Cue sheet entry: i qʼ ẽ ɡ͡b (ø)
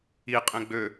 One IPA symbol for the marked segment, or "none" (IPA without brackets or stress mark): ø